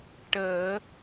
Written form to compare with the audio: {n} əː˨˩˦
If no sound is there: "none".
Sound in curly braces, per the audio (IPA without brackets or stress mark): ʈ